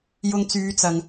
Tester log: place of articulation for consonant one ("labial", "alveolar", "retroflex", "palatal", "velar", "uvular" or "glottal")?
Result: palatal